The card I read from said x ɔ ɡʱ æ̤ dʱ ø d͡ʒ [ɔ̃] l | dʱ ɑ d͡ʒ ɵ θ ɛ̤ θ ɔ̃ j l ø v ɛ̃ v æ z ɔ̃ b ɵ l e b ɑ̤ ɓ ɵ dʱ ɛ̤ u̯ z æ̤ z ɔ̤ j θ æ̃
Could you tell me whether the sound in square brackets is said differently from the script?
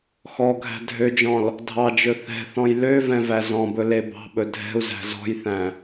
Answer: no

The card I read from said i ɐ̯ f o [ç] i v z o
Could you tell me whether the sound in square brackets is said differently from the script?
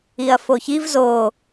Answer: no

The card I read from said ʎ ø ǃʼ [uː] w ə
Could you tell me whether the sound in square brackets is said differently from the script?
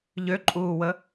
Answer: no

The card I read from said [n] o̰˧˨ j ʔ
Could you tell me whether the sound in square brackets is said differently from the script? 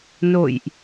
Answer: no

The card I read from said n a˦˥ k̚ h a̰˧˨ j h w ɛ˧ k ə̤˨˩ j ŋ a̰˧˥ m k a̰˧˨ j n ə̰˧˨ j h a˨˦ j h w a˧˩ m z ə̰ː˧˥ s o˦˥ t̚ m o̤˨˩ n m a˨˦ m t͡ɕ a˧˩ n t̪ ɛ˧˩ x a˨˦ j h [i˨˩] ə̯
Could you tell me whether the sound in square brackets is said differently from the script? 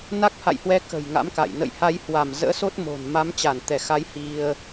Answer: yes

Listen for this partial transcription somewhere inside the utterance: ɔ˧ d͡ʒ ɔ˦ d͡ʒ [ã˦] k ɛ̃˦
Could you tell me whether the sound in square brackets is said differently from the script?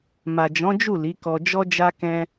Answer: yes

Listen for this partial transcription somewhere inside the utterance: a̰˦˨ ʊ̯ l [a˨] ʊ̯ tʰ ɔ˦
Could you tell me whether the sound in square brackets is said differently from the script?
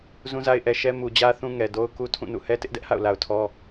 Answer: no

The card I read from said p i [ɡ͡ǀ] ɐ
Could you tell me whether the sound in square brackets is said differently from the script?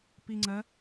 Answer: yes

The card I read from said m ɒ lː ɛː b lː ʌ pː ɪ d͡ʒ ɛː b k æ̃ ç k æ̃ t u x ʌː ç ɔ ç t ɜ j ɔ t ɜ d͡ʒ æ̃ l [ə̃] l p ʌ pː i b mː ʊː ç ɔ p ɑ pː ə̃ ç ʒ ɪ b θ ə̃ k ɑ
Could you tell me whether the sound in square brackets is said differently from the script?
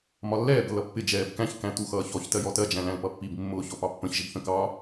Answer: yes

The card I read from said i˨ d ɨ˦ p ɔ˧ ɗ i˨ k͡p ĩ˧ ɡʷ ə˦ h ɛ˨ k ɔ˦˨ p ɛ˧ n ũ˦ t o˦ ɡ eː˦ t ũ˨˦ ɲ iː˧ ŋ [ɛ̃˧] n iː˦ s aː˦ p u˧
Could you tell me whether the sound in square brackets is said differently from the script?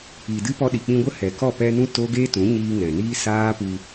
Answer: yes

